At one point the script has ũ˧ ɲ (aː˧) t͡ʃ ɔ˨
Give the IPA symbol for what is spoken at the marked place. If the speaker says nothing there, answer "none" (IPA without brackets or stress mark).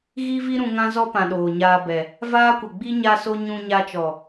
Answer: a˧